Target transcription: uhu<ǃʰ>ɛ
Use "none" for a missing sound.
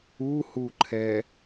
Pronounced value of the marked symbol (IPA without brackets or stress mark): ǃʰ